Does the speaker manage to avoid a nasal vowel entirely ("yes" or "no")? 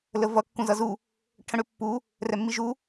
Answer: no